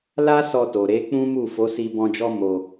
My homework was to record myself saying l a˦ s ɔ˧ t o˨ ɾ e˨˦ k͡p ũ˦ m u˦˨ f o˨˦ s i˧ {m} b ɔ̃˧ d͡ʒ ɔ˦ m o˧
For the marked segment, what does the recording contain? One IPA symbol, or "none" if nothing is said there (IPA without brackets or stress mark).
none